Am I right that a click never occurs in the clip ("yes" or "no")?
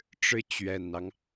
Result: yes